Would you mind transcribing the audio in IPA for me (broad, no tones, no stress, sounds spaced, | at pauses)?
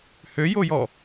h ø j o j ɔ